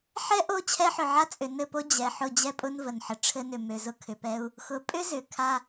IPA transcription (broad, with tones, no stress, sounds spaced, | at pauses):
ħ ɛ˦ ʔ o˦˨ t͡ɕʰ ɛ˦ ħ ʏ˨ ʕ a˦ t͡sʼ ʏ˨ n ɘ˦˨ p o˦ d͡ʑ ɛ˨ ħ ʊ˦˨ d͡ʑ ɛ˦ pʼ ʊ˦ n v ə˨ n ħ ə˨ ʈ͡ʂʰ ɘ˦ n ʏ˨ m ø˨ z ʊ˦ kʰ ʏ˨ p ɛ˦ u̯ | x ʊ˨ pʼ ʏ˦ z ʏ˨ kʰ a˦